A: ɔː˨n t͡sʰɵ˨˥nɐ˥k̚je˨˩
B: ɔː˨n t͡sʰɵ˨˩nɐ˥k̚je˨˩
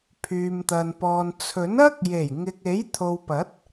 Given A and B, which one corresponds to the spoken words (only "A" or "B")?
A